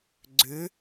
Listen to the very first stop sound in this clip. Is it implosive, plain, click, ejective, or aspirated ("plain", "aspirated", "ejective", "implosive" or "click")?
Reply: click